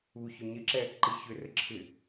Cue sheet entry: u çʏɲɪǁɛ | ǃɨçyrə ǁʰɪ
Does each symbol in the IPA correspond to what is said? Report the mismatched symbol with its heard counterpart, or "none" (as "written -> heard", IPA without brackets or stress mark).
y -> ʏ